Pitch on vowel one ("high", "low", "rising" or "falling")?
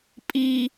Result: high